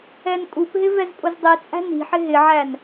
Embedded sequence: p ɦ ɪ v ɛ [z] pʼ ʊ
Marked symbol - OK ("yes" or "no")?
yes